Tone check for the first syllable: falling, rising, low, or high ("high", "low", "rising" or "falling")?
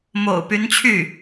low